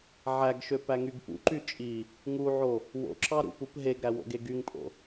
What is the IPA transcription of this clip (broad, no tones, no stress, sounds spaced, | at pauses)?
ʕ æ ɡ ʃ ø p æ ŋ y ɡ p ṵ ǃ y t͡ʃʼ i | ŋ u ʕ o | w o̰ ǁ ɑ ɾ ṵ p u p ɦ e ɡ ɾ æ w o̰ ɡ e ɡ y ŋ pʼ o̰